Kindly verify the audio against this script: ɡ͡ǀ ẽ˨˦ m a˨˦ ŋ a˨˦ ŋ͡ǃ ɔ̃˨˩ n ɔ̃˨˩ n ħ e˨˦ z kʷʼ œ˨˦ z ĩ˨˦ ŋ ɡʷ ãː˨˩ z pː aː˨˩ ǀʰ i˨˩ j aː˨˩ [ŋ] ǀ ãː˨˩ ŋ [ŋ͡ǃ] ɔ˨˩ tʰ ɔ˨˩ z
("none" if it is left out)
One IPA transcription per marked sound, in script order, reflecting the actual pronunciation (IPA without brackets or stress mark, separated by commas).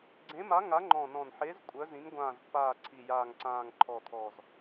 ŋ, ǃʰ